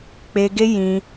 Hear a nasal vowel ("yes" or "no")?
yes